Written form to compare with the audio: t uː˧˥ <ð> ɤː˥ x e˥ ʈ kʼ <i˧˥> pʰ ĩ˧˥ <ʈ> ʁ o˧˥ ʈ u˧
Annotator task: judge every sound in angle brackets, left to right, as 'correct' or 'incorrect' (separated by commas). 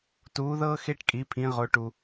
correct, correct, incorrect